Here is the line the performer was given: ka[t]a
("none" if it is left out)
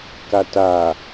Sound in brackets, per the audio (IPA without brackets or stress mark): t